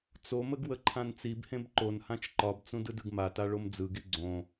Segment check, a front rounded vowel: absent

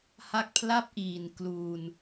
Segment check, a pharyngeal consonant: absent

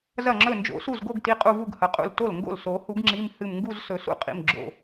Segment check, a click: present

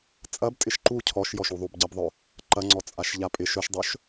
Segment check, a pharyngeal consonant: absent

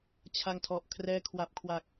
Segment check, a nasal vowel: absent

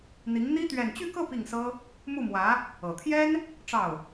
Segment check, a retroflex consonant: present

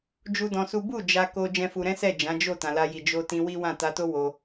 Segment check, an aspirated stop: absent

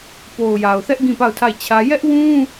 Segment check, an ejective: absent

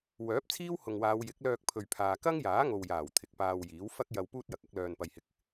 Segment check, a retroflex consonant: absent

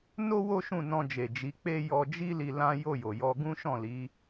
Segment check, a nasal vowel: present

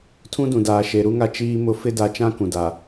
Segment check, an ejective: absent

